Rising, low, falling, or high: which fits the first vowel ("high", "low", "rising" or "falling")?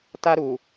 high